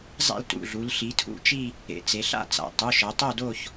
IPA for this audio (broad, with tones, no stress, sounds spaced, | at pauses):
zˤ ɛ̰˥˧ l t ṵ˩˧˩ ɮ u˩˧ l ɬ i˩˧ tʰ ṵ˥˧ t͡ʃ i˥˧ | ḛ˩˧ t͡s e˩˧ ɬ a̰˥˧ t͡s a̰˩˧ tˤ u˩˧˩ ʃ ɤ˩˧ tˤ o˥˧ d o˥˧ ç